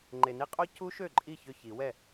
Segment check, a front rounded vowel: present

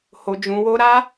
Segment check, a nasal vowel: present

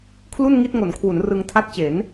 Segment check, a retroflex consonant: absent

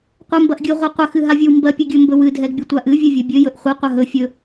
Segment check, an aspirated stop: absent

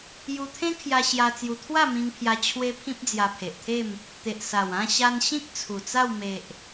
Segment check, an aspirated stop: present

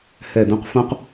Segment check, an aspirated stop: absent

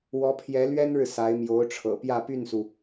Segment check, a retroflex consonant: present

